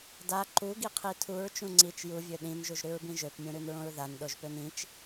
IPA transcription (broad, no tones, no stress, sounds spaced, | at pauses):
d a ǃ u ɡ i qʰ i tʰ u ɹ t͡ʃ ũ ŋ͡ǀ i t͡ʃ j u vʲ ø ɗ ĩ n ʒ u ʒ ɾ ʉ ɹ b ĩ ʒ ø p mʲ ũ ɾ ʉ n ɹ õ ɹ ð a n ɗ o ʒ p ø n ĩ t͡ʃ